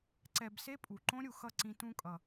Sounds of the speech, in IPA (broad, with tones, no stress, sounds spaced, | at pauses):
ǀ ɛ˧ b s e˦ pʼ u˨ ǃ õ˦ ɾʲ u˨ x ʌ˦˨ ǀ ĩ˧ t ũ˧ kʼ ʌ˨